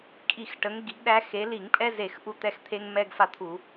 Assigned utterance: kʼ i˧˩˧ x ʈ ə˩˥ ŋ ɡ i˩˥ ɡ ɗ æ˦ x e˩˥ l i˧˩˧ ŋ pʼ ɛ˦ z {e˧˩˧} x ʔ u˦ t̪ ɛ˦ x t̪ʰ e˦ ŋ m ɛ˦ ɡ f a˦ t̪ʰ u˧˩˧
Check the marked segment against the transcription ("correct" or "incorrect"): correct